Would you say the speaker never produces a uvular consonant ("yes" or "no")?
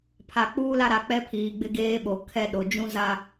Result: yes